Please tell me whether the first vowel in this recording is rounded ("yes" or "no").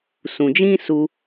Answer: yes